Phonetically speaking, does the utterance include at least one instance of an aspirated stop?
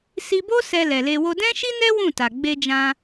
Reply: no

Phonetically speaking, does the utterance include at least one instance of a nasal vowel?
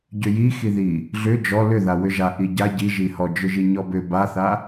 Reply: no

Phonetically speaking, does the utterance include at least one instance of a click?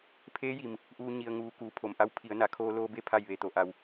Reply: no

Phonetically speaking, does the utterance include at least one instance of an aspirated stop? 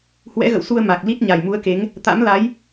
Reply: no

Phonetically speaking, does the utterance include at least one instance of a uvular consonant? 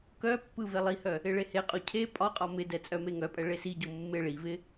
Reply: yes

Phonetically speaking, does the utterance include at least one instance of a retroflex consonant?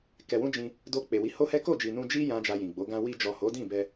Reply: no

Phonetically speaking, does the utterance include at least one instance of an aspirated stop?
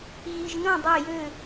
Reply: no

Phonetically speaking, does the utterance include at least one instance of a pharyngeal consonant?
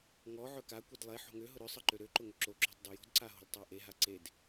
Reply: yes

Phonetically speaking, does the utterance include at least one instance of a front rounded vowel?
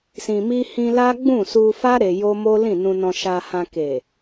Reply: no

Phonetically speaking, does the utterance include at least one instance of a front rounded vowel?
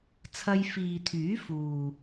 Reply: yes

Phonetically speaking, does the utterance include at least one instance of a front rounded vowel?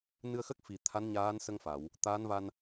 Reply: no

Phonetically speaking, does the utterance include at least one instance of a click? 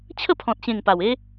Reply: no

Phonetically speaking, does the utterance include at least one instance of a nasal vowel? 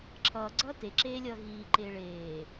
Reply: no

